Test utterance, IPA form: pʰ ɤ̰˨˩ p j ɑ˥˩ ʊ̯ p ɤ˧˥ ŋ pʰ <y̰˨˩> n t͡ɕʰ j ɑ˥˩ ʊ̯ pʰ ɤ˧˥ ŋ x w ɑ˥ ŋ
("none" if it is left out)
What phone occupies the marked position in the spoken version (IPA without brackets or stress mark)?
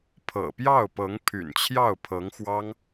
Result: y̰˨˩